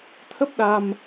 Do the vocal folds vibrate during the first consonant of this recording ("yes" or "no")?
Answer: no